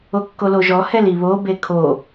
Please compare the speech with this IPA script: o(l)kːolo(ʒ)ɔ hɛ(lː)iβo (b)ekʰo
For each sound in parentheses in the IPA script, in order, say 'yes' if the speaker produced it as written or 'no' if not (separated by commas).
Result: no, yes, no, yes